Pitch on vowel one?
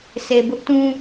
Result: low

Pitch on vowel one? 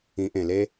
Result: rising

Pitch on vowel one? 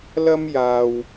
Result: high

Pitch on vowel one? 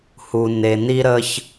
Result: low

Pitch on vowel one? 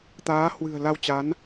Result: rising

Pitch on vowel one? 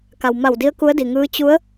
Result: low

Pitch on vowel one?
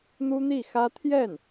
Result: high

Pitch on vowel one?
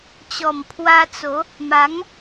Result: low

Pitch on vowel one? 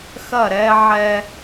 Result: falling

